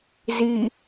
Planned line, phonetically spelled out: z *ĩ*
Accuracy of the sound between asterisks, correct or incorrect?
incorrect